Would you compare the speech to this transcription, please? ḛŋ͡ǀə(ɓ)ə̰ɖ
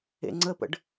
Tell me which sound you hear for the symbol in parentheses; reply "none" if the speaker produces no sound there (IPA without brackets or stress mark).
p